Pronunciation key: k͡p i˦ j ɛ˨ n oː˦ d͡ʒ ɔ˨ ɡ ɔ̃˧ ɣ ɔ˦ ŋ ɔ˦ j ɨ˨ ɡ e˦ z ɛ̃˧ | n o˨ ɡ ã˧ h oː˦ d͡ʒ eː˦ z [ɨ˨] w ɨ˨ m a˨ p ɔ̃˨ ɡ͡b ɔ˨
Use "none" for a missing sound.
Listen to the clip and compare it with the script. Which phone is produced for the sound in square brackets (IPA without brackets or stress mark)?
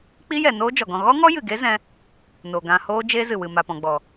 ɨ˨